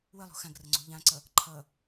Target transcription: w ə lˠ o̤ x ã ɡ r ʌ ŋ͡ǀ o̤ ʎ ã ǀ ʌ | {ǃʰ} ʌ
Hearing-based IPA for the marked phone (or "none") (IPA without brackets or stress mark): ǃʰ